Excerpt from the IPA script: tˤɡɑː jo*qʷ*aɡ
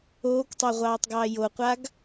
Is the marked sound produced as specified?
yes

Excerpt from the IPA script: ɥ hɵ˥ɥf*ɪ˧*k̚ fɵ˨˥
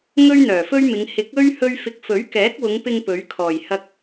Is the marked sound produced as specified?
yes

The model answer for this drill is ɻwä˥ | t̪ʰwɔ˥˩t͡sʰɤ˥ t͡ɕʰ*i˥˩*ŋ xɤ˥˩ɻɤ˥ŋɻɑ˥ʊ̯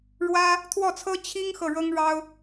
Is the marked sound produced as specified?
no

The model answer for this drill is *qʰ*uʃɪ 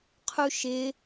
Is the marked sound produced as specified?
yes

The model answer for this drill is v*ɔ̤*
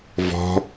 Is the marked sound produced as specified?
yes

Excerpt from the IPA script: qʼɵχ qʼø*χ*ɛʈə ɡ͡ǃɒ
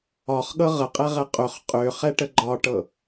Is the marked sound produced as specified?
yes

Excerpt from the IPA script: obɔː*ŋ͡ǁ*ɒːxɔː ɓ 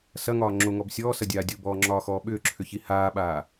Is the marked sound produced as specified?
yes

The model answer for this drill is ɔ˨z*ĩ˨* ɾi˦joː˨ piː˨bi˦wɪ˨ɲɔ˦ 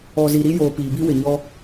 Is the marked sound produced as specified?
no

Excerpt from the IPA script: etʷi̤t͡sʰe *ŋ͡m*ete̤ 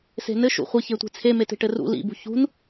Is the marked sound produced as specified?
no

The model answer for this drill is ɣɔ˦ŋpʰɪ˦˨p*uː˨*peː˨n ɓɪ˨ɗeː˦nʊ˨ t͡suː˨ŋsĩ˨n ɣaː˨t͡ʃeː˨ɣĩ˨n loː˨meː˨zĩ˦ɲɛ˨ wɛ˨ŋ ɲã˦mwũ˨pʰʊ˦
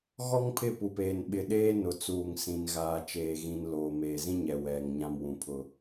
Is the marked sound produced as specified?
no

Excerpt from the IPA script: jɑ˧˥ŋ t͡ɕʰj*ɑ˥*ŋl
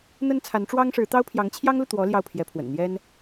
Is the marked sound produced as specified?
yes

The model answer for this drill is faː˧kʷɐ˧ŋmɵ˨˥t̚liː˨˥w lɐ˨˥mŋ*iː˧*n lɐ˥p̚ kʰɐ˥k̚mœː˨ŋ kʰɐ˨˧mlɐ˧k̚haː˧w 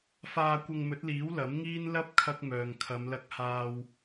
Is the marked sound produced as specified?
no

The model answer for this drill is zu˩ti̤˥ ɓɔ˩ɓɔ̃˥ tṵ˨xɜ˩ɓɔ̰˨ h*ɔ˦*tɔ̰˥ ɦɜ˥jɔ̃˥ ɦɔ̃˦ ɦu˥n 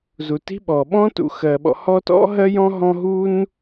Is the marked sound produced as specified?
yes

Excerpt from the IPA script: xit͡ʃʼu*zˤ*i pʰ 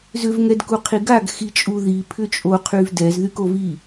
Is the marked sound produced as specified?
no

